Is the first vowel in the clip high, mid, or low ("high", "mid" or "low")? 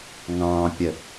low